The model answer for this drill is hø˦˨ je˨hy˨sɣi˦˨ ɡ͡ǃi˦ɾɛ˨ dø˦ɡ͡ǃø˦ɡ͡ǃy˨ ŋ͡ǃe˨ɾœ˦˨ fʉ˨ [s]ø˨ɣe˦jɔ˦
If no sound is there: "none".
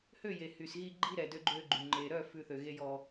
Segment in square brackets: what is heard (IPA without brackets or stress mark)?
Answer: θ